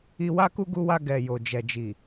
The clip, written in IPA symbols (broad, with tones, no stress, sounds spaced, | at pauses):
i˧ w a˦ k u˦ ɡ u˧ w a˧ ɡ ɛ˨ j o˨ d͡ʒ ɛ˨ d͡ʒ i˨